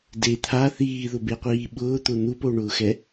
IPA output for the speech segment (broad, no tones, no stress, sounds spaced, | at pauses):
d e t̪ʰ a θ iː ð ʊ b e qʷ iː ɓ ʊː t̪ ʊ n̪ u p o ɳ ʊː x ɛ